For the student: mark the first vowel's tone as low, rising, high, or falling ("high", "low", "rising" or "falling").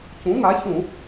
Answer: rising